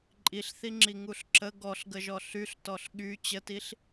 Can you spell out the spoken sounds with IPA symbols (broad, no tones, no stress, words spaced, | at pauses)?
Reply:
ǃʼiɬθiŋ͡ǁi ŋuɬǁə ɡɔɬɡəʒɔ ɬyɬtɔɬ ɠy t͡ɕətiɬ